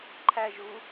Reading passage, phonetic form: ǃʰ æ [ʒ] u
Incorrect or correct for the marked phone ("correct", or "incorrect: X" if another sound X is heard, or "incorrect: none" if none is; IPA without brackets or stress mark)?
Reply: correct